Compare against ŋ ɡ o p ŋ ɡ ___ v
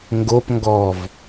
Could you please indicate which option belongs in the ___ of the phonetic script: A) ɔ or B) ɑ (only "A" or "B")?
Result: A